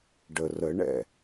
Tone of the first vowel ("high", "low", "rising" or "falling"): low